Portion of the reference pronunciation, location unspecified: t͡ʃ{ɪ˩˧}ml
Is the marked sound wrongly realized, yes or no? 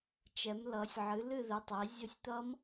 yes